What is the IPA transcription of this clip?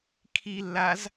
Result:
kʰilːaz

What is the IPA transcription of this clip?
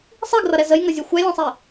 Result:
sˤiɡrʌɾɛ zəjŋʌzʲʌ xʷælʲɛ̃sˤi

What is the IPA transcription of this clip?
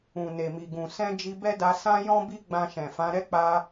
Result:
ũ˨ne˨mi˨ɡũ˨ sɛ̃˧ d͡ʒi˧bɛ˦ da˧sã˦jɔ̃˦ bi˦ɡ͡bã˧ʃɛ̃˨ fã˨˦ɾɛ˦ k͡pa˦

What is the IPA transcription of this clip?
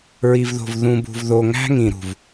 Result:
ɹi˨vðo̤˨v ðũ˨bṳ˨vðo˨ŋæ̤˦ ŋĩ˨ɾṳ˨v

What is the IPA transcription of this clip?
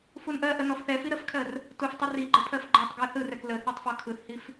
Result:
funʔɜʔə nɔfθɛfi ɾəfkʰɜr | tuftˤə riɡ͡ǃə pʰɜfɡ͡ǃɜtˤɡɜ θɯrɛk lə θɜtˤfɔkʰɯθhif

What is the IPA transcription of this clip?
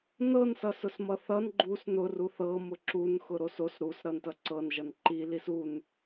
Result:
nɤn sʌsʊsmʌθʌn ɡ͡ǃus nʊ ruθɤ mʊǁun xʊɾosos ɾus ɾʌntʌǀɤn ʒʌnǃi lisun

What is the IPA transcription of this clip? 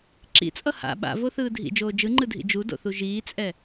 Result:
ǁḭt͡sʼʌ ha̰ ɓa̰voθɯː dʱḭd͡ʒoː d͡ʒɯŋ͡ǃɯdʱḭ d͡ʒudo̰θu ʒiːt͡sʼɛ

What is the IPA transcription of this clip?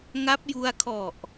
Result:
ŋa˦˥p̚ju˧a̯ kʰɔ˨˩ʔ

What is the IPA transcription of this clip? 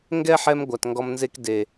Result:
ŋɡɛ˦ħɛ˧m ɡʷa˨tŋɡɔ˧mnze˦k de˨

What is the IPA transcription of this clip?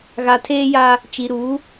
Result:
ɣa˨tʰeː˦ja˦ | t͡ʃi˨ɾuː˨˦

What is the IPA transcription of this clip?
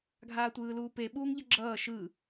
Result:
ɡʱaːtʷɯːluːpe ɓuːŋʎʌɡ͡ǁʌː ʃɯ

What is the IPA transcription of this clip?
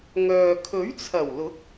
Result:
ŋœː˨ kʰɵ˨˥ɥt͡sʰɐ˨˩wlʊ˨˥k̚

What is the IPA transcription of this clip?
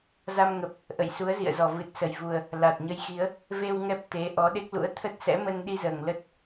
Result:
za˧mŋə˨˩p̚ | ʔə̰˧˨jsu˨˦ə̯zḭ˧˨ə̯ zɔ˨˩vɨ˨˩t̚sə˨˩jvu˨˩ə̯ | la˨˩t̚ɲə˧jxi˨˦ə̯ | ve˧w ŋɛ˦˥p̚ t̪e˨˦ ʔɔ˨˦ɗe˦˥k̚ lṵ˧˥ə̯ t̪ʰə˦˥t̚sɛ̰˧˥mə˧n ɗi˧zəː˨˩ŋ lə˦˥t̚

